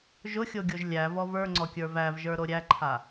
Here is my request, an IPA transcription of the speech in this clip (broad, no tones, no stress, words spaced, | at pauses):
ʒʊxʲoɡʲoʒ lʲævɔv ə˞ŋ͡ǀɔkʲə˞ vævʒə˞ ɾoɾʲæǃʰa